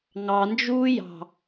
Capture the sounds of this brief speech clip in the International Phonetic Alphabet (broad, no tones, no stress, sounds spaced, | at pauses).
ŋ ɑ n d͡ʒ uː j ɑ̤